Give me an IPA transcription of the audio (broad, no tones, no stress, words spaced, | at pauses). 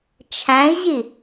t͡ʃʰæ̃i̯ʑi